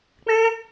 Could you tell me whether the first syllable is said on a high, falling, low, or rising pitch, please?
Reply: high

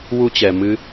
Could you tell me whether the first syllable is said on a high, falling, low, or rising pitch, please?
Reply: high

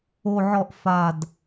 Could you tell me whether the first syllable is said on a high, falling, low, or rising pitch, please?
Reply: falling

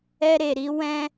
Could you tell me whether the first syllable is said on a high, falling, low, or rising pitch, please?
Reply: high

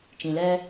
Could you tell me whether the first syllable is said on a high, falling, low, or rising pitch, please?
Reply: low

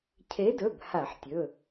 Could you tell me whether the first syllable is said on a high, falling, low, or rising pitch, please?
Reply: rising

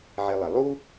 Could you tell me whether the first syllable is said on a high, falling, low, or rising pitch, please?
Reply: low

